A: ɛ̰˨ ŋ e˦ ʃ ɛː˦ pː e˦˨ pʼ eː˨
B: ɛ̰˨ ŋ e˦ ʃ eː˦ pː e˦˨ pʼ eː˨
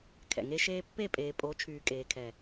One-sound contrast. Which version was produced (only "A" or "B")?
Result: B